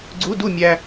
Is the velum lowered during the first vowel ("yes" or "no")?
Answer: no